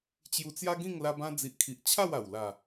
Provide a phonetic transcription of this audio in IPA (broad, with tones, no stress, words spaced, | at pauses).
t͡ɕju˧t͡sja˦ɡĩ˥˧ŋ la˧bã˧d͡zi˨ʔkʰi˨ʔ t͡ɕʰa˥˧wa˨˩wla˨˩